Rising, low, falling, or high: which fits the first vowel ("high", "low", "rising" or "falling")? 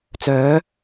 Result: rising